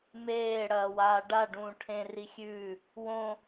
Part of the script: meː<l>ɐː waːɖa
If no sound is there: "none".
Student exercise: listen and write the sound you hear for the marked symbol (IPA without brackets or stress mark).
ɽ